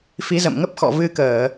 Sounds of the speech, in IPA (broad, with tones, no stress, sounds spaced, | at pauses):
f i˨˦ z ə̰˧˨ m ŋ ə˦˥ p̚ x ɔ̰˧˨ v ɨ˧ k əː˧˩˨